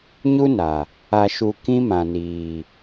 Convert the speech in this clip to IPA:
ɲ u˦ n a˨ | a˧ ʃ u˧ k ĩ˦ m ã˨ n iː˨

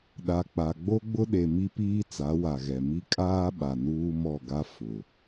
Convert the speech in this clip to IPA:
ɗ a˨ k͡p a˨ ɡ͡b o˦ ɡ͡b ʊ˦ ɗ e˨ m i˦ p iː˦ t͡s a˨˦ w a˨ ɣ ɛ˨ m i˦ kʼ aː˦ ɓ a˨ n uː˦ m ɔ˦˨ ɡ a˦ f ʊ˨

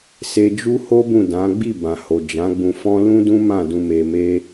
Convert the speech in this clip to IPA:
s e˧ d͡ʒ u˦ h o˦ b ũ˦˨ d ã˨˦ ɡ͡b i˦˨ b ã˨ h o˨ d͡ʒ ã˨˦ ɡ͡b ũ˧ f ɔ̃˦ l ũ˦ d ũ˦ m ã˦˨ d ũ˧ m e˧ m e˦

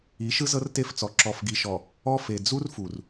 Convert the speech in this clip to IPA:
i˨˦ ʃ ɯ˦ z ɤ˦ r t e˦˨ f t͡s ɔ˨ ǁ ɔ˨ f ɡ i˨ ʃ ɔ˨ | ɔ˦ f e˨ d͡z u˦ r f u˨ r

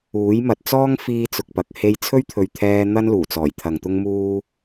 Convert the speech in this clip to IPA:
uː˨˥ j m ɐ˨ t̚ t͡s ɔː˥ ŋ f iː˥ t͡s ʊ˧ k̚ p ɐ˨ k̚ h e˧ j t͡sʰ ɵ˥ ɥ t̪ʰ ɵ˨ ɥ t̪ʰ ɛː˧ n̪ ɐ˥ n l uː˨˩ t͡s ɔː˨˩ j t̪ʰ ɐ˨ ŋ t̪ ʊ˥ ŋ m uː˥

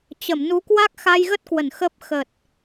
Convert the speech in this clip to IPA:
t͡ɕ ə˧˩ m n u˨˦ k w a˦˥ k̚ x a˧ j ɣ ə˦˥ t̚ k w ə˧˩ n x ə˦˥ p̚ x ə˨˩ t̚

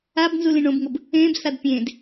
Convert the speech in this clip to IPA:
a b n z u l ĩ ɳ õ b ŋ o b | ẽː b s a d pʲ ẽː d

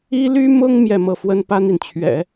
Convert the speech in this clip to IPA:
i˥ l y˥ m ʊ˥ ŋ m j ɛ˥˧ m ɤ˥˩ f w ə˥ n p a˥ n i˨ n t͡ɕʰ ɥ ɛ̰˨˩˦

